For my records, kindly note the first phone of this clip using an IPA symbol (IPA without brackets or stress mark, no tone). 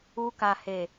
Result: u